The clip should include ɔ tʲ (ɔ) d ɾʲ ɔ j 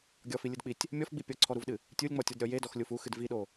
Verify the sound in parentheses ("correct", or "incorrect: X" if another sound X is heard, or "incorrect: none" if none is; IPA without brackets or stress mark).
correct